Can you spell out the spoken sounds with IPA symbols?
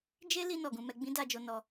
d͡ʒe˦li˧ nɔ˨ɡũ˧mɛ˧ ɡ͡bĩ˦da˧d͡ʒo˧ nɔ˧

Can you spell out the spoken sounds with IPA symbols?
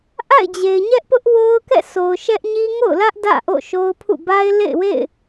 ʔa̰˦˨ɪ̯d͡ʑe˨ɪ̯ ɲɛ˦ʔpʊ˦ʔwo˦ʊ̯kɛ̰˦˨ so˨ʊ̯ʃɛ˦ʔɲi˦ ŋo̰˦˨ʊ̯lä˦ʔ dä̰˦˨ʔo̰˦˨ʃo˦ʊ̯pʰṵ˦˨ ba˦ɪ̯lḛ˦˨ɪ̯wḛ˦˨ɪ̯

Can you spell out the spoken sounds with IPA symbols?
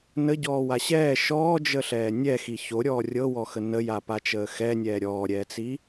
nəɟɔːwa ɕɛː ʃɔːd͡ʒəɬɛː nʲɛxi çoɾʲɔː rʲɤwɔxə nəjapat͡ʃəː xɛnʲɛː ɾʲɔːɾʲɛːt͡si

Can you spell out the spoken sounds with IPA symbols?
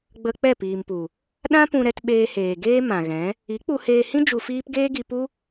ɡ͡bə˧ k͡pɛ˦˨piː˨mpu˨ | ɗã˦pũ˧ɾɛ˧t ɓeː˧heː˨ ɡeː˦ mã˨ɣɛ̃˨˦ | i˨˦k͡pu˧heː˧hĩ˦ d͡ʒu˧fiː˦p ɡeː˦ɡi˧pu˦

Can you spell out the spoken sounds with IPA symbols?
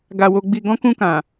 ɡa˧wo˧ɡ͡bi˧ ɡɔ̃˧kũ˧kã˨

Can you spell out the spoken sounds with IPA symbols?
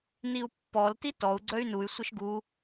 niu̯pːɔlti tɔu̯ ɡ͡ǀœy̯nuy̯sʷəʃ ɡu

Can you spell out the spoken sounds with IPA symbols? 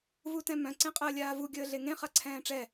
vutɛ̃mœ̃ ǀẽqʼəːlʲaːvu ɡʲəːɮeŋẽ χaǀʰɛ̃ːʈ͡ʂɛ

